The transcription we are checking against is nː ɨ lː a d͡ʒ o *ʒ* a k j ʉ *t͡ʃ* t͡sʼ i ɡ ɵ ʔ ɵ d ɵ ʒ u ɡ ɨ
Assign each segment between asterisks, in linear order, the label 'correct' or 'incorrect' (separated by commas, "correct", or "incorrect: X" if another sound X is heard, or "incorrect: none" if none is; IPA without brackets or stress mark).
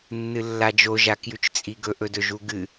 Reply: correct, correct